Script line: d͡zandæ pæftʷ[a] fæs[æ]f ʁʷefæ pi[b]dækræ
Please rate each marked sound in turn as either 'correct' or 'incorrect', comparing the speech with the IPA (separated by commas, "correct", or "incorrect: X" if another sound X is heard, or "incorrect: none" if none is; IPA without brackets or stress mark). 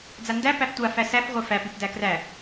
correct, correct, incorrect: p